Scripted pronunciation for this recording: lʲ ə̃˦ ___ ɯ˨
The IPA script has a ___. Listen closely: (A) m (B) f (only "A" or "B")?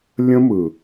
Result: A